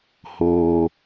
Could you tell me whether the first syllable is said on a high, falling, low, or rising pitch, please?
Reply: low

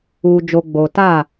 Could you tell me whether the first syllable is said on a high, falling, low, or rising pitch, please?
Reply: low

